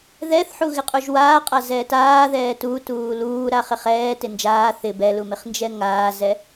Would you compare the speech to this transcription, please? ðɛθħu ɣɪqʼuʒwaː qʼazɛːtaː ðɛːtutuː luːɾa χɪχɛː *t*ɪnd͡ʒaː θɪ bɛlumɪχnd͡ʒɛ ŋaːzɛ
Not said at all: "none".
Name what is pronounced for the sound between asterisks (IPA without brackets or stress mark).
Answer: t